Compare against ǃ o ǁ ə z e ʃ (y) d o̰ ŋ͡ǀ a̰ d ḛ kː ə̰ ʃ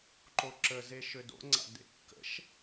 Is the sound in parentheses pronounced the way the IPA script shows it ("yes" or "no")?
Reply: no